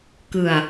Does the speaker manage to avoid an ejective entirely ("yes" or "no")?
yes